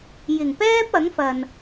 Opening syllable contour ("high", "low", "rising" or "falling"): low